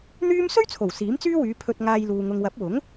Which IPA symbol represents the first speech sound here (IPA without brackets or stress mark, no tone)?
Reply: n̪